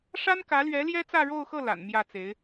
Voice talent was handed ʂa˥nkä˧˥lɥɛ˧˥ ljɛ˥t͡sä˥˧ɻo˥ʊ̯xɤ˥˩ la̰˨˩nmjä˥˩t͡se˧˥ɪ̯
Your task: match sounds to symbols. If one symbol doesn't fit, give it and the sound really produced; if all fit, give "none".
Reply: o˥ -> o˥˧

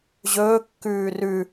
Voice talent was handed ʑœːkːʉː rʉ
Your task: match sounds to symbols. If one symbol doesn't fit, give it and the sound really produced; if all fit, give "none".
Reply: œː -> ɵː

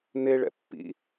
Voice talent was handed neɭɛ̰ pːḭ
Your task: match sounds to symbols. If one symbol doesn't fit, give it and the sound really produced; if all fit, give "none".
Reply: none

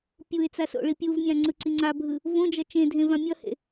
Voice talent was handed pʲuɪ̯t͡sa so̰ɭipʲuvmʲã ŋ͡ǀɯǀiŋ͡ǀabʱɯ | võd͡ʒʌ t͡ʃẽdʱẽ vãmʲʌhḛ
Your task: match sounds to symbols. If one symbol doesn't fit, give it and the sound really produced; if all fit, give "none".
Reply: none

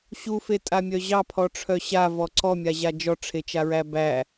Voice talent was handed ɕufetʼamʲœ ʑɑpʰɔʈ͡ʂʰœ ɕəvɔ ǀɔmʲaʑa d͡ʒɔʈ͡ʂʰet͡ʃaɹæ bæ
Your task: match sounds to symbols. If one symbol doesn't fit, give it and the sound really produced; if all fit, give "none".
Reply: ə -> a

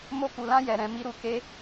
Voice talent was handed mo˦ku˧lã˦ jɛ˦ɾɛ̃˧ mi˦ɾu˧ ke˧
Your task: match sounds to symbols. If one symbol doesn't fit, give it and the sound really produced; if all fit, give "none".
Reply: ɛ˦ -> ɛ˧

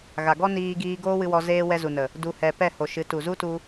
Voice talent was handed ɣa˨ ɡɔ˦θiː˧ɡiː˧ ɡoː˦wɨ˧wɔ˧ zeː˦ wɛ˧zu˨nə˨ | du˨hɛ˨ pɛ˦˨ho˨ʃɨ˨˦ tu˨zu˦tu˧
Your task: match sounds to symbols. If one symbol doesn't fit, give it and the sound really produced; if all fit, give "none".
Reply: θ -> n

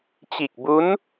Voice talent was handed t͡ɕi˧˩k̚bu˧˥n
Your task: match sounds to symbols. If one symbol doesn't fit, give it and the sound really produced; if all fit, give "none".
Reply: none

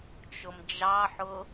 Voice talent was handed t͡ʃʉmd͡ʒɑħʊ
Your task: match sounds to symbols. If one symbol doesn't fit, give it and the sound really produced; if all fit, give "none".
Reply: ʉ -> ʊ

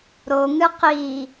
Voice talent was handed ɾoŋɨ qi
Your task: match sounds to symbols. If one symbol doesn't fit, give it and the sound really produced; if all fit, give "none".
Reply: none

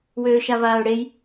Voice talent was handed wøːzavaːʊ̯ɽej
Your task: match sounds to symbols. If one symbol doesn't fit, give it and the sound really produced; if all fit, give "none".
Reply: z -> ʃ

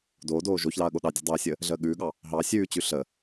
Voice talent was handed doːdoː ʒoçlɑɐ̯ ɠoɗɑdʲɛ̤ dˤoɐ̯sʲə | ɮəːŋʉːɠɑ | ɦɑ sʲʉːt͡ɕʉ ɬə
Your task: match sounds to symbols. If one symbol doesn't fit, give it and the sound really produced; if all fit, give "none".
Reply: ŋ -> ɠ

